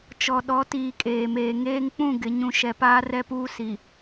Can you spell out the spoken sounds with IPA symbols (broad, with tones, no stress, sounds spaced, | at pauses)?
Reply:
t͡ʃ ɔ˨ ɗ ɔ˨˦ t iː˨ kʼ eː˨ m eː˨ ŋ eː˦ ŋ k͡p ũ˦˨ ɡ ɪ˨ ɲ ũ˨ ʃ ɛ˨ p aː˦ r ɛ˦ p uː˦ s i˨